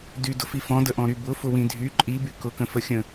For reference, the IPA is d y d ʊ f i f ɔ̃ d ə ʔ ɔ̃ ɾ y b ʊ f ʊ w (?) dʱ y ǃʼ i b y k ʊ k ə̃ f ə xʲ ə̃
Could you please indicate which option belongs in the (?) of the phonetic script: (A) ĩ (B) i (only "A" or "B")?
A